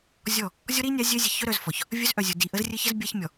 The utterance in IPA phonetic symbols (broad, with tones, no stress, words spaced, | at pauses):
zʲɔ˦˨ | zʲɔ˦ɾi˦nʲa˨˦ zʲœ˦zʲɘ˨ çœ˦ɾœ˨z fɔ˨ç | vʲœ˦zʔœ˨zʲu˨ di˨ ʔə˦zrʲɘ˦çɘ˦z bʲa˦ç mʲɔ˨